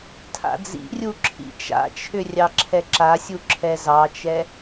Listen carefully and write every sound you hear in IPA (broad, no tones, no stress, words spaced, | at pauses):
tʰa̰d͡zḭrʲu ǁʰḭt͡ʃa̰t͡ʃʰʏ rʲɑǁʰɛǁasʲu ǁʰɛzɑt͡ʃɛ